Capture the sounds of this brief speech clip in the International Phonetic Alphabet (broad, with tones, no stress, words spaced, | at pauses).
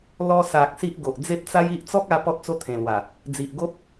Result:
lɔ˧sa˨k̚ si˦ʔɡo˨ʔ d͡ze˦p̚t͡sa˦ji˦ʔ t͡sɔ˦k̚a˧ pɔ˦t̚t͡so˦t̪ʰẽ˨˩lwa˨˩ | d͡zi˨ʔɡo˦p̚